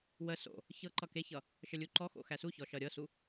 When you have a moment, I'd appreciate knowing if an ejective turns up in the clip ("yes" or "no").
no